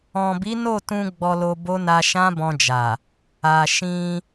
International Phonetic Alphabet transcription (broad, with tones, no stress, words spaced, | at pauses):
ɔ̃˨bi˨˦no˦˨tũ˧ ɡ͡bɔ˧lo˧bo˦ na˧ʃã˦bɔ̃˧d͡ʒa˨ | a˨ ʃĩ˧